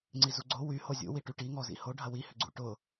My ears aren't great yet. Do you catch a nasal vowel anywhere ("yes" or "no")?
no